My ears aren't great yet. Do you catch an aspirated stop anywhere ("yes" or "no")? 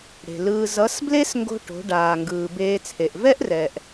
yes